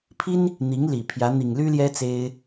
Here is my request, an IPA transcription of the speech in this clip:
pʰi˥n | n̪i˧˥ŋli˨˩ pʰjä˧˥ n̪i˨˩ŋ ly˥ljɛ˥ t͡se˥ɪ̯

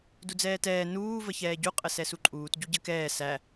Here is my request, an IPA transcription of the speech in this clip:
dud͡zɛːtɛː nuː vəçɛːɟu qʼəsɛsuǃʼuːt ɟuɟəkɛː sæ

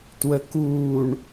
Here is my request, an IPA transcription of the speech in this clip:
twəkuːɳ

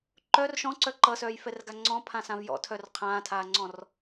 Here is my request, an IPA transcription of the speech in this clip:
ǃœr ʃɔ̃ǀœ ǃʌsœːjfɛrɡa ŋ͡ǀɔ̃pʰãsãv jɔ̰tʰœr qʰãːtʰaːŋ͡ǀɔ̃r

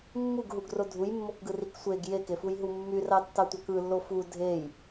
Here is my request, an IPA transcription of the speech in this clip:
mːuɡɦuɡro dʱujmːokɡɯrik sʷeɡ jekefujɦu mːyrɑtːɑtʷɑk ɯlːo fu dʱej

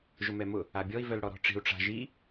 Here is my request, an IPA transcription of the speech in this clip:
ʒʊmɛmʊ | abʲɔi̯ vœlɽɔɾɔ̤ʈ͡ʂi̤u̯ ʈ͡ʂa̤ʒi

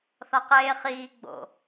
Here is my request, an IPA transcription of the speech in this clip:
θɒqeːχiː ɡ͡bo̰

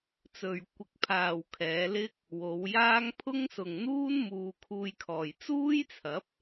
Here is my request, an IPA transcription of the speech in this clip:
t͡sɵ˨ɥ kʷɪ˨k̚pʰaː˨w kʰɛː˨˧lɪ˥k̚ | wo˨˧wjaː˥ŋ pʰʊ˥ŋsʊ˨ŋn̪uː˥n muː˧kʰuː˧jkʰɔː˨j t͡suː˥jt͡sʰɐ˨˥p̚

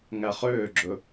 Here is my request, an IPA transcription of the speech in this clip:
ŋæχøːɡ͡ǁɵ

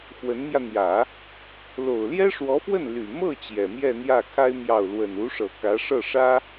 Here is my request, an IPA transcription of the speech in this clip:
xwə˧˥nmjä˧n̪jä˨˩˦ | lo˨˩ʊ̯ljɛ˥ʂwɔ˧˥fwə˥˩n ly˨˩mɤ˥˩ t͡ɕjɛ˨˩mjɛ˥˧n̪jä˥˩kʰa˥ɪ̯ mjɑ˥˩ʊ̯ lwə˨˩nu˧˥ʂɤ˨˩ kä˧˥ʂɤ˥˩ʂä˥

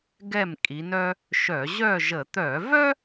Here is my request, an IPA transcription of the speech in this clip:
ɡɛ˥˨mkʼi˨˦nœ˥ | ʃœ˧˩˧ ʑœ˥˨ʒə˧˩˧ t̪œ˧˩˧vœ˥

